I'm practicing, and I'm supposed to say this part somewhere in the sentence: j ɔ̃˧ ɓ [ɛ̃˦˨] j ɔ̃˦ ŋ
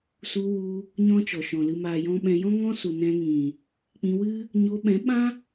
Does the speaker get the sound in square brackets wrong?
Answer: yes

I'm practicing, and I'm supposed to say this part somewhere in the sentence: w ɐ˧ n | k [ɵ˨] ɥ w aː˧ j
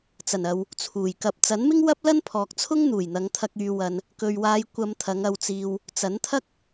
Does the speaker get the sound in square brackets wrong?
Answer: no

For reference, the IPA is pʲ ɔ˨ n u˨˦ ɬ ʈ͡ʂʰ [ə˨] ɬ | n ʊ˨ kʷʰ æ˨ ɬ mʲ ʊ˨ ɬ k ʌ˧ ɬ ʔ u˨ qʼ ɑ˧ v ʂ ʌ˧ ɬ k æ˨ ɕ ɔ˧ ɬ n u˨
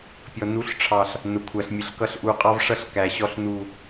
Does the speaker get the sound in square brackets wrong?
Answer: yes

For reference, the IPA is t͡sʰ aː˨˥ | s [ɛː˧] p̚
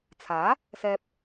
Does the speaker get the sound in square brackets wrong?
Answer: no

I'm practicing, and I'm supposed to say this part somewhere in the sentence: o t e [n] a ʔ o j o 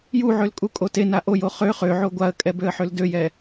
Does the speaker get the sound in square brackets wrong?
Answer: no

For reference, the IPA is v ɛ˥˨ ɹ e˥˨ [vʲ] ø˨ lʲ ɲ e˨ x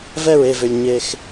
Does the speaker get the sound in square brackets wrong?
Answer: yes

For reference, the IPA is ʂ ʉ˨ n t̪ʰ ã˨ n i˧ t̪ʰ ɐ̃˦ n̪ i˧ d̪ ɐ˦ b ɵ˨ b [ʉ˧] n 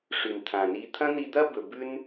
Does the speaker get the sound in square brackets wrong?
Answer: no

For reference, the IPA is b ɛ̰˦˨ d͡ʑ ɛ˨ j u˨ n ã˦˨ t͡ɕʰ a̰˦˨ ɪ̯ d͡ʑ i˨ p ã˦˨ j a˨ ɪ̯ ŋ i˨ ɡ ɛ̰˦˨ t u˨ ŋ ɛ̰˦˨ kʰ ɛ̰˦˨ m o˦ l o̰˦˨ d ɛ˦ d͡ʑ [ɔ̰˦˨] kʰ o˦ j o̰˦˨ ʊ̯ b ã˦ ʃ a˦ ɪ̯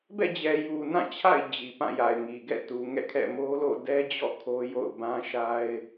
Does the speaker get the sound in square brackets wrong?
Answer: no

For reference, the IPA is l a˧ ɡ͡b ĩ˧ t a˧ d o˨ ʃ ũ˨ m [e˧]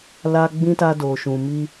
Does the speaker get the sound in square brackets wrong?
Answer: yes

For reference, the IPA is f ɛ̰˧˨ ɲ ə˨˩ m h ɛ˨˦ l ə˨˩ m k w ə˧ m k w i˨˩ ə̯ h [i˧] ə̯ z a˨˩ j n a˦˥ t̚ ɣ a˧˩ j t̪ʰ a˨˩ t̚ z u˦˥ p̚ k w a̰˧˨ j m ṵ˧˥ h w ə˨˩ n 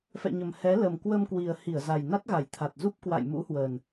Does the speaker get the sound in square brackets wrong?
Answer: yes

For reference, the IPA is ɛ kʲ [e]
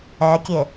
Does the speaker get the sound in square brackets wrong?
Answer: no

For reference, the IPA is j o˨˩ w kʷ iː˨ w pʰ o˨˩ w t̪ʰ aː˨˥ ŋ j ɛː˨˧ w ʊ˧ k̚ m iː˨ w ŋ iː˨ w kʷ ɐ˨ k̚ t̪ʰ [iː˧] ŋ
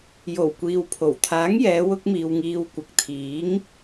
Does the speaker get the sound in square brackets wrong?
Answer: yes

